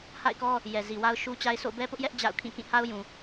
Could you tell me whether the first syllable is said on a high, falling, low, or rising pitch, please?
falling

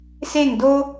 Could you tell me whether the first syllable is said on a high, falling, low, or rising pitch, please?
falling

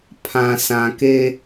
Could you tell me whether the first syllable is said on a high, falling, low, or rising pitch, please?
low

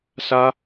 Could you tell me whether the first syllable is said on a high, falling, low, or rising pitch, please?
high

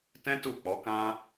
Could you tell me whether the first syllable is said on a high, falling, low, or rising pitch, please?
high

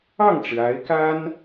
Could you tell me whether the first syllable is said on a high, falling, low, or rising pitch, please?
falling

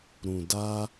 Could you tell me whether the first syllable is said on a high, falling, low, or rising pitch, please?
low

